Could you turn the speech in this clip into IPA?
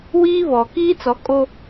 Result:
wiː˦βɔ˨ kiː˦t͡sɔ˨˦kʼo˦

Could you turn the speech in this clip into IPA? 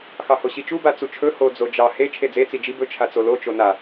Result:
xɑhoɕit͡ʃu bat͡sut͡ʃʰɵ ho d͡zod͡ʒɑ he t͡ʃʰed͡ze t͡sid͡ʒi bɵ t͡ʃʰat͡solo t͡ʃona

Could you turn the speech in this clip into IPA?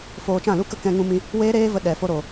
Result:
foː˧ t͡ʃã˦˨lu˦kə˦ kɛ̃˧ŋũ˧mĩ˧ | weː˦ɾeː˦və˧ ɗɛ˨ fo˧ɾo˨

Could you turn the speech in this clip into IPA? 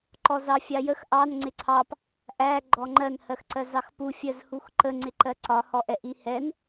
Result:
ǃɔzɑfʲɑjəx ʔɑn ŋ͡ǀɪǀʰɑp | ʔæ ɡ͡ǃɔŋ͡ǃɜn hɜxǀɜzɑxpu fʲɜzhuxǃə ŋ͡ǀɪǃɜǀɒ hɔʔɛʔihɛn

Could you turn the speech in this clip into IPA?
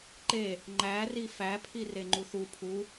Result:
ǃe | ŋ͡ǃæri fæpʰi reŋ͡ǃuθu pʰu

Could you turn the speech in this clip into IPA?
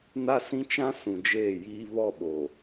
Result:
na˦sĩ˦ t͡ʃã˦ sũ˨d͡ʒeː˦˨jiː˦ βɔ˦˨ɓo˨

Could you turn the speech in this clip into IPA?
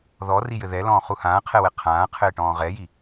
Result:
ðɔrijɘ ðɛlɔ̃ːχu hãːqʰɛwɛ qʰãːqʰɘːʈɔ̃ː ʁɛji

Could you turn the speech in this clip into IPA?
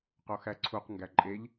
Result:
qoxæǀʰuq ŋɡæǃʼeʎ

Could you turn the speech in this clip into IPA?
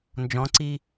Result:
nd͡ʒɔ̃ǀi

